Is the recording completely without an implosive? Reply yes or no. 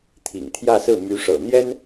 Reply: yes